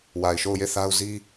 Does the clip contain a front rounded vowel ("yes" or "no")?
no